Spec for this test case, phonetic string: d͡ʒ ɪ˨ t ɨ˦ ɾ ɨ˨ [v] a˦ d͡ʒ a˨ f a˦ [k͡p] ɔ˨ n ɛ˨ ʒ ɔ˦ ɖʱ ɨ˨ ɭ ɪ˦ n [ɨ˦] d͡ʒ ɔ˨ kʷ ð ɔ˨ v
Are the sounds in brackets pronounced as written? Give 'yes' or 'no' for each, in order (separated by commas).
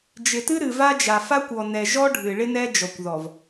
yes, no, no